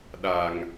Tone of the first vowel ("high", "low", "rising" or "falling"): low